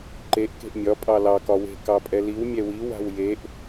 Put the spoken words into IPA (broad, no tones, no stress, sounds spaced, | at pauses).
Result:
ǃ e ʔ k e̤ ʔ mʲ ɒ pʼ ɑ l ɑ k ɒ w e̤ k ɑ pʼ ɛ l i w mʲ ɛ w i w a̤ w j e ʔ